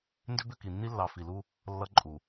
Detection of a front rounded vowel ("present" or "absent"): present